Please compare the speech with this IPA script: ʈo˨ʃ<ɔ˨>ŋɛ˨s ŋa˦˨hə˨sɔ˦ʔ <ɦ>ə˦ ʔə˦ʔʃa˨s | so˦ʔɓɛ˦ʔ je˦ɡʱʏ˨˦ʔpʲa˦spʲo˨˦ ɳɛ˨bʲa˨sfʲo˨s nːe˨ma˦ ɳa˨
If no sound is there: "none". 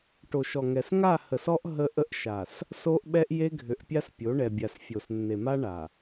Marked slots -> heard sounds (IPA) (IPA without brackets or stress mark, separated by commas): ɔ˨, ɦ